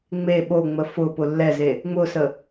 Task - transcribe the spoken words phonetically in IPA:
ŋ͡m e ɓ o ŋ͡m ə f ʊ p ʊ lː ɛ z e | ŋ͡m ʊ s ə

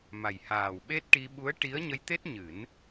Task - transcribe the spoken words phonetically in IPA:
m a˨˩ j h aː˨˩ w ɓ e˦˥ t̚ ʈ i˧ ɓ u˧˥ ə̯ ʈ i˧˥ ə̯ ɲ ə˧ j t̪ e˦˥ t̚ ɲ ɨ˨˩˦ n

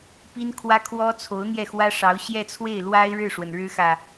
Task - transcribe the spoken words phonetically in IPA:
p i˥ n kʰ w ä˥ kʰ w ɔ˥ t͡sʰ o˧˥ ʊ̯ n̪ j ɛ˥˩ x w ä˥ ʂ ɑ˧˥ ʊ̯ ɕ j ɛ˥˧ t͡sʰ w e˥˩ ɪ̯ l w a˥ ɪ̯ ɻ ɻ̩˥˩ ʂ w ə˩ n ɻ ɻ̩˥ x ä˨

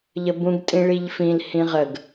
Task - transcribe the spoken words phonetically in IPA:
ʎ ə b ũ ɡ tʼ ĩ ɭ i ʎ f ĩ l h ĩ ʁ ə ɡ

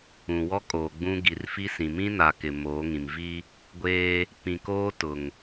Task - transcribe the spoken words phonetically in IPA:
ũ˨ w ɔ˦ kʼ oː˨ ɡ͡b ũ˦ ɡ i˨ r f i˦ s ĩ˨ m ĩ˦ n a˨ k ɪ˨ m oː˨˦ ŋ ĩ˨ m v i˦ | ɡʷ eː˦ | p ĩ˨ k oː˦ t ʊ˨ ŋ

